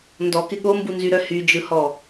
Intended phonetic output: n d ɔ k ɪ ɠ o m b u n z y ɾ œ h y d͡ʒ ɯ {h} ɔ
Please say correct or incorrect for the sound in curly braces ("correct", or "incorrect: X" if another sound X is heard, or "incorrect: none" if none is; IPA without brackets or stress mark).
correct